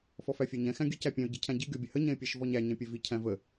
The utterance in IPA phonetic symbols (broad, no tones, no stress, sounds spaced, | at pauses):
f ɔ f æ fʲ æ ɲ ɛ̃ x æ̃ ɡʲ ə c æ pʲ ɛ̃ ʊ̯ ɟ i cʰ æ̃ ɟ i ɡʲ ɔ bʲ ə h ə ɲ ɛ̃ ɪ̯ pʲ æ ʃ v ɔ ɲ æ ɲ ɛ̃ pʲ ɛ v i cʰ æ̃ v ə